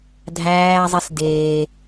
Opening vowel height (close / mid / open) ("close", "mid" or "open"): open